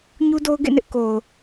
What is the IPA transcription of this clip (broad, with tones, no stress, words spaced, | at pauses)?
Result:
ɲu˦do˦ʊ̯ɡḛ˦˨nɪ˦ʔ ko˨ʊ̯